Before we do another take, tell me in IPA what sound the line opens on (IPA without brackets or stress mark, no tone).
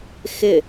x